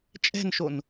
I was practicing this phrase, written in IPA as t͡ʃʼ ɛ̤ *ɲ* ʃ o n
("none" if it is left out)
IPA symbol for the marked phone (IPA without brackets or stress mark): n